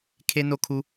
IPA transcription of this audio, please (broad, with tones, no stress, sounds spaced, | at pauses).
kʰ e˦ n o˦ kʰ u˦